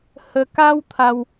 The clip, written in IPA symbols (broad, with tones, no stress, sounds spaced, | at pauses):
h ə˧ k a˦ w t̪ʰ a˧ w